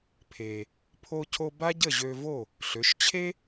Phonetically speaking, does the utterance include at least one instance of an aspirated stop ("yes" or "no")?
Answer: yes